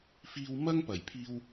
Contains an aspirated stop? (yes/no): yes